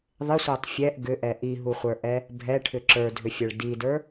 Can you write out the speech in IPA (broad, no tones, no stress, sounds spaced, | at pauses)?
ðˤ ɪ sʷ ɛ tˤ fʲ ɛ ʔ ɡ ʏ ʔ ɛ ʔ i ɦ u χʷ ə˞ ʔ ɛ | bʱ ɛ ʈʰ ʏ ǁ ə˞ dʱ ʏ fʲ ə˞ ɭ d i d ə˞